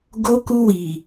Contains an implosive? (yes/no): no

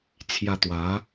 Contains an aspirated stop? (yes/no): yes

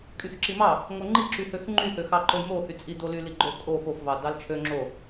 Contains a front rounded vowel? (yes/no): yes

